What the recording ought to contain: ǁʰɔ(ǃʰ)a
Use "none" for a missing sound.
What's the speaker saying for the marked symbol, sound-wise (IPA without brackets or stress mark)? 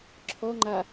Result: ŋ͡ǃ